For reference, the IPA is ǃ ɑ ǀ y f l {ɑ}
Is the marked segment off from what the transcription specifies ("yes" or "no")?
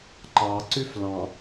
yes